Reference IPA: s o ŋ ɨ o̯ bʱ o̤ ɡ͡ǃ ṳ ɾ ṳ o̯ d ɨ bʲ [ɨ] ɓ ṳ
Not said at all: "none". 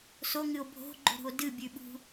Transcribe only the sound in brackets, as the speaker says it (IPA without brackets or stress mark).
ʉ